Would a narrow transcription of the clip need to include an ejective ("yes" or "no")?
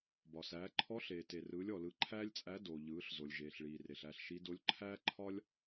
yes